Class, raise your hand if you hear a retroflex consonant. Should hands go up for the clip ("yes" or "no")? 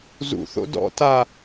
no